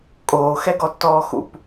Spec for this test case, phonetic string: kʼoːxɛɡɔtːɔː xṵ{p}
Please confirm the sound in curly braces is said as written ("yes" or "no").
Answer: yes